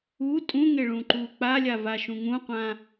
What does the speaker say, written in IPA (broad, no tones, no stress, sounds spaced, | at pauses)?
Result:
u tʼ ũ ŋ e ɭ ũ ǃ uː k͡p a lʲ a v a ʃ ũ ŋ ũ qʷ ã